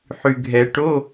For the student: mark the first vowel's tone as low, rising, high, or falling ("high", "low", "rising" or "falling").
low